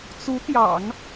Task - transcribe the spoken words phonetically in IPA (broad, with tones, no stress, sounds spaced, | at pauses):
t͡s u˧˥ t̪ j ɑ̰˨˩˦ ŋ